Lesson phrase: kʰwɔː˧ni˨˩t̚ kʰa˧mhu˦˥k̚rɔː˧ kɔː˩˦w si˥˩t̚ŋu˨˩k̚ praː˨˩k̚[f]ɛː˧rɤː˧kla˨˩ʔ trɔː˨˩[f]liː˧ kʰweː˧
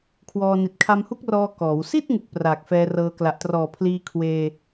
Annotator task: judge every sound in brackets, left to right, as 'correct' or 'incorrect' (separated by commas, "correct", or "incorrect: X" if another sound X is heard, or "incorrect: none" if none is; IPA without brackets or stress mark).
correct, incorrect: pʰ